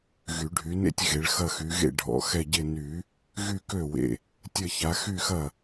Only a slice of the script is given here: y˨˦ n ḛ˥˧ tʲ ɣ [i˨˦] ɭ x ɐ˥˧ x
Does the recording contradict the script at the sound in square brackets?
yes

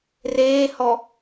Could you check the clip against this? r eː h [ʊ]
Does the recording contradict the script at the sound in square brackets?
yes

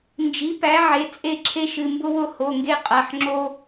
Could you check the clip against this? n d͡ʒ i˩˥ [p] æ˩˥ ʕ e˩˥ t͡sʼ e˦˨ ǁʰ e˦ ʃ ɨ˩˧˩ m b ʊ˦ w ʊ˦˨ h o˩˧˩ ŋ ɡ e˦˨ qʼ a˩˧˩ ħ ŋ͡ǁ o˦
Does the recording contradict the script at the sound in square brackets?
no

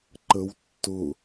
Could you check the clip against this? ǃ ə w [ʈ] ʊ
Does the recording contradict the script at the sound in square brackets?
yes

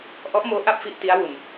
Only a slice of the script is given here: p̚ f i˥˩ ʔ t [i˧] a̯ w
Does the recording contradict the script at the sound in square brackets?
yes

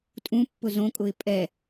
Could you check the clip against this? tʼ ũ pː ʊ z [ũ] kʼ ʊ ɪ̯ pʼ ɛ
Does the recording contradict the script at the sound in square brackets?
yes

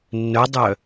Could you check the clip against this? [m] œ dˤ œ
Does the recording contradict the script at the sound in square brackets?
yes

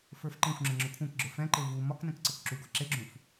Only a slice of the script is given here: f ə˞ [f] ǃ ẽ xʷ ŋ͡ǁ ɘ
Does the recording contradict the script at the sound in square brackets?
no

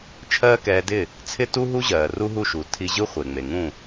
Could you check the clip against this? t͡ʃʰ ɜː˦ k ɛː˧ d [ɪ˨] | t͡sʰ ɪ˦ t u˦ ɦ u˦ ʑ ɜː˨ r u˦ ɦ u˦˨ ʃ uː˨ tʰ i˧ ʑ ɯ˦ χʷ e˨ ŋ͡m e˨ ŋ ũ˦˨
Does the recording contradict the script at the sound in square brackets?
yes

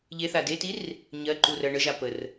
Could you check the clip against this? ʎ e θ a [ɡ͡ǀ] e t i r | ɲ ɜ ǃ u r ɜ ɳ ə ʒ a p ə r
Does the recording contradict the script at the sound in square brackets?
yes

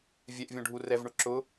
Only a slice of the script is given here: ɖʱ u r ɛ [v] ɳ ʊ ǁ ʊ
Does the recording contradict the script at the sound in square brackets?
no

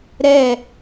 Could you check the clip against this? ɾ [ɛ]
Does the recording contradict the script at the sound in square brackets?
no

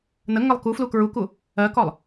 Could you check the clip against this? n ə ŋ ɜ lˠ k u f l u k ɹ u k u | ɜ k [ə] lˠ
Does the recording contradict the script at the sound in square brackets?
yes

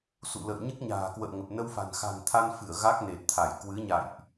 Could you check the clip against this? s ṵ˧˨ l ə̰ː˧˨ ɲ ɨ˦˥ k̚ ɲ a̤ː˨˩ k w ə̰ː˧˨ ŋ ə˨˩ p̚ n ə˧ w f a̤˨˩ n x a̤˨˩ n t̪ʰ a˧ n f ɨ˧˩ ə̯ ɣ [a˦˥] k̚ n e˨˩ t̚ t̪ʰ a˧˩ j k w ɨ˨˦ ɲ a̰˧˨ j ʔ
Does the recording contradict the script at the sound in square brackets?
no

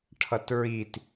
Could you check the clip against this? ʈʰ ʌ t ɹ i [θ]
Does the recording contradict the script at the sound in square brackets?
yes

